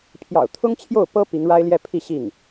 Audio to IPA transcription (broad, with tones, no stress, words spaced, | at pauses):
pʰjɑ̰˨˩ʊ̯t̪ʰʊ˥ŋ t͡ɕʰjo˥˩ʊ̯pɤ˥ pi˧˥ŋɻa˥ɪ̯ljɛ˥˧ pʰi˥˧ɕi˥˩ŋ